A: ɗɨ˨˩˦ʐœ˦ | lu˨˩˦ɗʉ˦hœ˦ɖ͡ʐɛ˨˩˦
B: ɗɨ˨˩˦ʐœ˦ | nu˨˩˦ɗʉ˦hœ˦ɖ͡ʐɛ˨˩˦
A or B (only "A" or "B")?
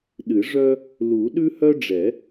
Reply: A